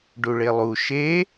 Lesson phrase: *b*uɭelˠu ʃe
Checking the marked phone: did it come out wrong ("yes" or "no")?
yes